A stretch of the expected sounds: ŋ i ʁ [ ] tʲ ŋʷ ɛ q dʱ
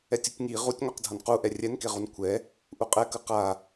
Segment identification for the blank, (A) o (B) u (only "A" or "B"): B